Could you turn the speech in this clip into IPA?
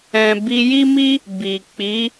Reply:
ɛ̃˨ b i˧ j i˦ m i˦ | b i˨ k͡p i˨˦

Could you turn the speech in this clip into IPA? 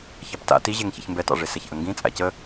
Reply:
ç ɑ p t a̰ t i ʑ e ŋ ç ḭ ç m b ɛ t ɑ̰ ʐ e s ɛ ç ʔ ə ŋ ɡ ĩ t͡sʼ a̰ c ə

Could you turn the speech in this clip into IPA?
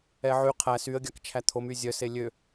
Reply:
ɛ ʕ y qʰ æ s y ə̯ ɡʲ ɑ k t͡ʃʰ æ t̪ʰ o m y zʲ œ s e lʲ ø

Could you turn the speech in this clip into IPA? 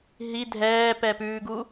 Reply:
ɦ i dʱ ɛː p ɛ p ʉː ɡ u

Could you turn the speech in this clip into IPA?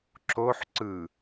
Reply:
ǁ o ħ ǀ ɯ

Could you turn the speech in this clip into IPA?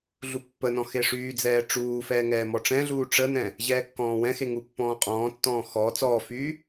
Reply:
ɮ u pː ə n ɔ̃ x e ʂ yː d͡z ɛː ʈ͡ʂ uː f ɛː ŋ ɛː m ɔ ʈ͡ʂ ɛ̃ ɮ uː ʈ͡ʂ ə n ɛ̃ | ʑ ɛː kː ɔ̃ː w ɛ̃ x e ŋ u pː ɔ̃ː qʼ ɔ̃ː tː ɔ̃ː x ɔ t͡s ɔː f yː

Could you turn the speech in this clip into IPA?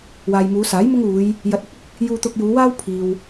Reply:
w aː˨ j m uː˨˧ s aː˨˥ j m ʊ˥ ŋ uː˨˧ j | j ɐ˨ t̚ ɪ˨˥ k̚ ʊ˨ k̚ | j uː˧ t̪ ʊ˧ k̚ j uː˨˧ w aː˥ w pʰ iː˨ w

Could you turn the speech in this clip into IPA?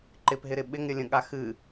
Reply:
ǃ ɪ p ɦ ɪ ɾ ɪ ɓ ɪ ŋ ɾʲ ə lʲ ə̃ ɠ a x ɨ

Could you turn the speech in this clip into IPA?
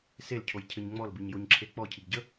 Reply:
s e l cʰ o j cʰ ɘ ɲ ŋ͡m ɔ l b i ɲ j o ɲ ǁʰ e k͡p ɔ cʰ i ɡ ɟ ə

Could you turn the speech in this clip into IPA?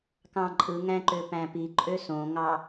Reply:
k ɑ̃ ǃʼ ɯ ŋ æ̃ ǃ ø p æ̃ p i ǃʼ ø s õ ŋ ɑ

